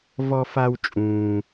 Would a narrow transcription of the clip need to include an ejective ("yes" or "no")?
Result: yes